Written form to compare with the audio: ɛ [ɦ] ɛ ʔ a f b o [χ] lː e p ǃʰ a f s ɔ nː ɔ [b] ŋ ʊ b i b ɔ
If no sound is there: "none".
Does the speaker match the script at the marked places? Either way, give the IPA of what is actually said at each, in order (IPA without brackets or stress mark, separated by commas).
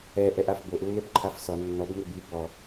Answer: ʔ, ʔ, b